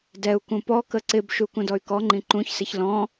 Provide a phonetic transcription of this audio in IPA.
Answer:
d ɛ u̯ k ũ p ɔ k ə ǀ ɪ b ʃ u k ũ d ɔ y̯ k ɔ ŋ͡ǃ ĩ ǃ ũ ç s ɪ ç l ɔ̃

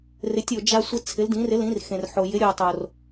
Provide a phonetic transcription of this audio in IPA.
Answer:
r ɪ˨˥ tʲ o˧ d͡ʒ a˧ sʷ ɪ˧ t͡sʰ ɪ˨˥ l d ĩ˨˥ r ɪ˨˥ l ĩ˨˥ r x ẽ˧ r ħ o˧ j ɪ˨˥ ɾʲ o˧ tˤ o˧ r

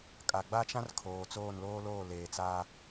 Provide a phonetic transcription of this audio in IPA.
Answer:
kʼ a˨ ɡ͡b a˦ t͡ʃ ã˦ r kʰ oː˨ t͡s oː˦˨ n l oː˦ l oː˦˨ l eː˨ t͡s aː˦

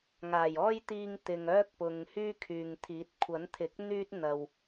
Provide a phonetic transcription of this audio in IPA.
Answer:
ŋ aː˨˩ j ɔː˥ j t̪ iː˧ ŋ t̪ ɪ˨ ŋ œː˥ k̚ p ʊ˨ ŋ h yː˥ kʰ yː˨ ŋ t̪ʰ iː˨˥ t̚ kʷʰ ɐ˨˥ n t̪ʰ ɪ˨˥ k̚ n̪ yː˥ t̚ n̪ ɐ˧ w

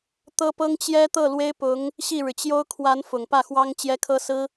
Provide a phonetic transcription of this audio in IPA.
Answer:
t̪ ɤ˥ p ɤ˥ ŋ t͡ɕ j ɛ˥ t̪ ɤ˥˩ l w e˥ ɪ̯ p ʊ˧˥ ŋ | ɕ i˥˩ ɻ ɻ̩˩ t͡ɕ j o˥ ʊ̯ kʰ w a˧˥ n f ʊ˨˩ ŋ p ä˥˩ x w ɑ˥ ŋ t͡ɕ j ɛ˥ kʰ ɤ˥ s ɹ̩˥

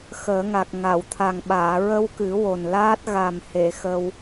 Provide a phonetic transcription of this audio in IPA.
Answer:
x əː˨˩˦ ŋ a˨˩ k̚ ŋ a˨˩˨ w t̪ʰ a˨˩ ŋ ɓ aː˨˩˨ ɹ ə˧ w k ɨ˨˩˦ w o˨˩ n l aː˦˥ t̚ ɣ a˨˩ m h e˨˩˨ x ə˧ w

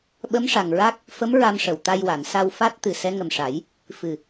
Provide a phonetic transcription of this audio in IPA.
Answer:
ɓ ə˧˥ m ʂ a˨˩ ŋ ɹ a˦˥ k̚ | f ə˧˥ m ɹ a˧ m ʂ ə˨˩ w t̪ a˧ j w a˨˩˨ n s a˧ w f a˦˥ t̚ t̪ ɨ˨˩ s ɛ˧˥ ŋ ə˨˩ m ʂ a˨˩˦ j | f ɨ˨˩

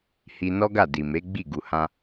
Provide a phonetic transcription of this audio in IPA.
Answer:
h i˧ n ɔ˦ ɡ a˦˨ d i˨ m e˨˦ ɡ͡b i˦˨ ɡ u˨ h ã˧

